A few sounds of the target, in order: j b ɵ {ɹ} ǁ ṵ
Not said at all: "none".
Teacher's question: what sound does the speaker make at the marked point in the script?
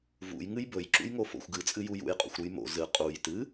j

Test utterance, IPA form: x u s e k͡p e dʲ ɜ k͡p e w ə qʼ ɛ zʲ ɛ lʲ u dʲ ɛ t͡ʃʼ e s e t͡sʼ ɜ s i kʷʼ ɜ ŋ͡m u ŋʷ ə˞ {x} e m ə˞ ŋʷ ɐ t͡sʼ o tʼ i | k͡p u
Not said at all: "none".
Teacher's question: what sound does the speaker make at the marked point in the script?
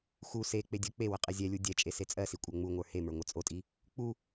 h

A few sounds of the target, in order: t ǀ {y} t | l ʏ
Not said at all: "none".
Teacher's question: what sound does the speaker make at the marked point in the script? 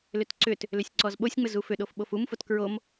ʏ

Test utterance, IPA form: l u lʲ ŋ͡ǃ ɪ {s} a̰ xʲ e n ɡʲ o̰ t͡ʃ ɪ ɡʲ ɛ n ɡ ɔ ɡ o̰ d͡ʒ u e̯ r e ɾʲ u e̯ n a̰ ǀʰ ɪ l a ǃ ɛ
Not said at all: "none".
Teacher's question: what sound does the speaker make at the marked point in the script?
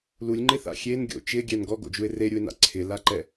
θ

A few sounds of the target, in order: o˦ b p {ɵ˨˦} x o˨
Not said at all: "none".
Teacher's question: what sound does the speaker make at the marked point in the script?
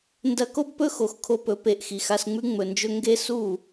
ɵ˦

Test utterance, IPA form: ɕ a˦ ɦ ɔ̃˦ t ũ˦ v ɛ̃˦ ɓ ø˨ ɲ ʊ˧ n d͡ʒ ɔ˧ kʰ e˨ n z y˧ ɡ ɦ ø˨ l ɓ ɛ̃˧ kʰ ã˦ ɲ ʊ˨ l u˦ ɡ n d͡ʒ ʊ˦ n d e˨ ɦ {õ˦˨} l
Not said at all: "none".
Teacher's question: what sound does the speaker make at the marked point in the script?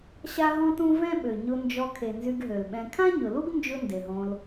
õ˧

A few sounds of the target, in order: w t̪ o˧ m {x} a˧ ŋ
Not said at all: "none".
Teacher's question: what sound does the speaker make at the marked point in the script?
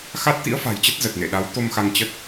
x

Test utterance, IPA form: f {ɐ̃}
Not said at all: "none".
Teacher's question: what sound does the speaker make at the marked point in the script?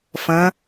ɐ̃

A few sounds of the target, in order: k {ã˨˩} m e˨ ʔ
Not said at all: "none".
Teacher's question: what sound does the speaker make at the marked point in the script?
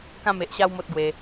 ã˧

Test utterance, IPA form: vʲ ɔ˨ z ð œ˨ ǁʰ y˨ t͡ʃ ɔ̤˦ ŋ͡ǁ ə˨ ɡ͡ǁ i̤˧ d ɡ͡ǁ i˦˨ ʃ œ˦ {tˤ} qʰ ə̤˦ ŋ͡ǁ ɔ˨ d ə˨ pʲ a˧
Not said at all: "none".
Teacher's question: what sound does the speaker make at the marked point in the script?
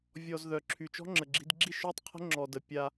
tˤ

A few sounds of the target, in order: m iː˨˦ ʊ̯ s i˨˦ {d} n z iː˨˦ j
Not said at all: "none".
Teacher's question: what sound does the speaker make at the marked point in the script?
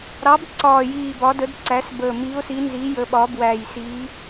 none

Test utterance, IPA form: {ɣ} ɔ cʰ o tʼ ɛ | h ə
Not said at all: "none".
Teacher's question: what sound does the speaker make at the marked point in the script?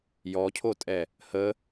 j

